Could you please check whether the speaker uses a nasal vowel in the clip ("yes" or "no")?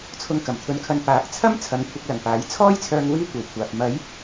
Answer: no